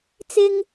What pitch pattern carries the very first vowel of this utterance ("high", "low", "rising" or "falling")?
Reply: high